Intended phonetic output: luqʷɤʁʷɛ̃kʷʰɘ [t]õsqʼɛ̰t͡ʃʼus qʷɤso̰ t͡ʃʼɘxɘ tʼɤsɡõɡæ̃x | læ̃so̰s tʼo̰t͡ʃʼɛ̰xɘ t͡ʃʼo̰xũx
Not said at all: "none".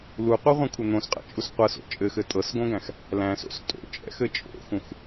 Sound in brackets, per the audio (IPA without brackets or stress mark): n̪